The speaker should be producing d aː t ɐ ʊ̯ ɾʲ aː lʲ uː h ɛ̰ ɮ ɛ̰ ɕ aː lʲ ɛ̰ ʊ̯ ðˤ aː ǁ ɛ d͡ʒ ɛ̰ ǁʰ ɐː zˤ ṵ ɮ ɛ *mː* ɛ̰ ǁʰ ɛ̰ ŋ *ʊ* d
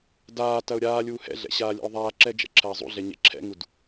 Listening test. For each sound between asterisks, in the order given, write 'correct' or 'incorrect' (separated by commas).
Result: incorrect, incorrect